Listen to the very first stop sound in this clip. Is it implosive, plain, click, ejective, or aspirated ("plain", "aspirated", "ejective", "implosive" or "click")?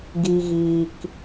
plain